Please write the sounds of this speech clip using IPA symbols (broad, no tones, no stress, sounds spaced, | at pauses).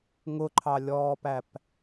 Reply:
ŋ ʊ ǃʰ ɑ lʲ ɔː p æ p